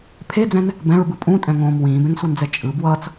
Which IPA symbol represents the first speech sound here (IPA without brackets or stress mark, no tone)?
pʰ